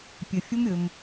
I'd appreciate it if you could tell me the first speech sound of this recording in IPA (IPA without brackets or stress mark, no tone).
pʲ